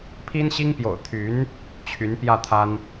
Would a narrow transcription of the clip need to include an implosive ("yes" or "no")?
no